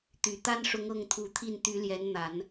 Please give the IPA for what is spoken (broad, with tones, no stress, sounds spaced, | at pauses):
t̪ y˨˩ t̪ a˥ n ʂ ʊ˧˥ ŋ ɤ˥˩ ŋ t̪ʰ u˧˥ t̪ʰ i˥˩ n t̪ y˧˥ l j ɛ˧˥ n n̪ a˨˩˦ n